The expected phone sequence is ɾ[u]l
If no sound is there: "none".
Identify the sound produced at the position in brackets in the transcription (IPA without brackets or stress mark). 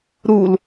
u